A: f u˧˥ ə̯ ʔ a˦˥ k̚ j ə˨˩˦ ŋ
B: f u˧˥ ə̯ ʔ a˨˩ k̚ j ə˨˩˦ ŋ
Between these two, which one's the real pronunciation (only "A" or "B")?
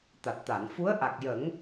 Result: B